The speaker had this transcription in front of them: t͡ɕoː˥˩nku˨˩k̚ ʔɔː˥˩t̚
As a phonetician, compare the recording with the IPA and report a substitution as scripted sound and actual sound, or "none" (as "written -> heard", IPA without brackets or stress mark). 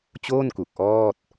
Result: none